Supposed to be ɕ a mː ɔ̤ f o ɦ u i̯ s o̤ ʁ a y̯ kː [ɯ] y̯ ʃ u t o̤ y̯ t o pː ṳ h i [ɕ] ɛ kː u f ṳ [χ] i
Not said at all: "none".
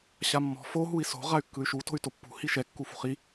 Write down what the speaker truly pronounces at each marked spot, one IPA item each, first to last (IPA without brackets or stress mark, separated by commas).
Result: ɯ, ʃ, χ